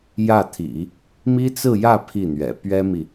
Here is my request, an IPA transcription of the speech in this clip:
jä˥˩t̪ʰḭ˨˩˦ | mi˥t͡sɹ̩˥˧jä˥˧ pʰi˥˩n̪ɥɛ̰˨˩ pɥɛ˥mi˨

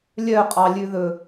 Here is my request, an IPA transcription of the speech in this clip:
lʲœqʼɑlʲʉðɵ

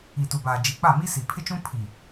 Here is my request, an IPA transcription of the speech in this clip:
i˨tu˨baː˨ d͡ʒi˨k͡pa˦˨mi˦si˨ pʰɪ˦t͡ʃũ˦ pʰi˨

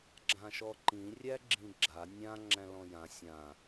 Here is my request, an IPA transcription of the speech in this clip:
ɡ͡ǁãʃɔǃĩ rʲæɡ͡ǁĩɡ͡ǁa nʲã ŋ͡ǁæ̃lɔ̃jã sʲã

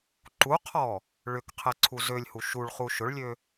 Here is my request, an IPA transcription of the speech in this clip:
ǃuqʰɔ | ɭʏkqʰɛ ǀʰuzølʲhu ʃuɭχu ʃʊɭlʲø

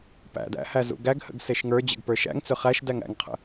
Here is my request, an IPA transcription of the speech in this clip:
pæ̰dæ̰ hæzṵɡæɡhə̰ɡ seʃŋə˞d͡ʑə̰ɡ pə˞ʃæ̰ŋt͡sʏ χæʃ dæŋæ̰ŋqʰə̰

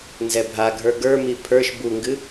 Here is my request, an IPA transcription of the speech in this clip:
nzɛbʱaɡʱə˞ ɡə˞mi pʰə˞ʃ buŋɡɨ

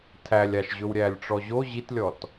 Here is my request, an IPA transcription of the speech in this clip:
tʰælʲaʃʑɵwɾʲælʲ ʈ͡ʂɔʑo ʑitlʲɔt

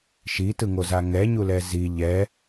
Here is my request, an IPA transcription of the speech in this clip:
ʃitɯŋoza ŋɛɲulɛ zi ʎɛ

